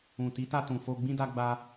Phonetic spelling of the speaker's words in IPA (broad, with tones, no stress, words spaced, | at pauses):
ũ˨ti˨˦ ta˧tũ˨ fo˧ ɡ͡bĩ˦da˦ɡ͡ba˦